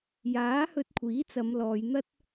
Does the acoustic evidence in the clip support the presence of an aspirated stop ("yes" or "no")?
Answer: yes